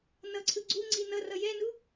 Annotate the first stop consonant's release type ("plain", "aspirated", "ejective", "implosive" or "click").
click